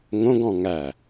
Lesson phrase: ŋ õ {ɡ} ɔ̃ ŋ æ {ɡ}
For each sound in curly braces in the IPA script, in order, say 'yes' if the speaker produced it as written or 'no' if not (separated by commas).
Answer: yes, no